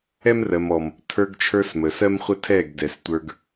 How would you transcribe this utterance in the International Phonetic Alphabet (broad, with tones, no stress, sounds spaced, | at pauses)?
ɛ˦ m r ɜ˨ m ɔ˨ m | tʰ ə˞˧ ɡ t͡ʃʰ ə˞˧ s m ə˨ s ɜ˦ m χʷ ə˦ tʰ ɛ˦˨ ɡ d ɛ˨ s tʷ ə˞˧ ɡ